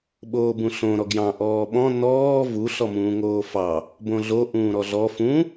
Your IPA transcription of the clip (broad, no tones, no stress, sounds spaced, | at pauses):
ɓ oː b ũ ɬ õ ɾ ɔ ɡ j ɑ̃ ʔ ɔː ɓ ɔ̃ n ɔː v u ɬ ɔ m ũː ŋ oː f ɑ | b õ ɮ o ʔ ũː ɾ ɔ ɮ ɔ f ũ